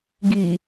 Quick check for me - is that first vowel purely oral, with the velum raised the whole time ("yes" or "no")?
yes